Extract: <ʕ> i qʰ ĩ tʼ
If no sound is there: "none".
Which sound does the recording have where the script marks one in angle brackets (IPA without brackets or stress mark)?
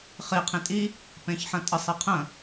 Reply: χ